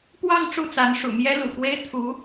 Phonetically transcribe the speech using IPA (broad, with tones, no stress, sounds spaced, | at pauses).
p w ɑ˥˧ ŋ ʈ͡ʂ u˥˩ t͡s a˧˥ n ʂ ṵ˨˩ m j ɛ˥ l ṵ˨˩ k w e˥ ɪ̯ t̪ʰ u˧˥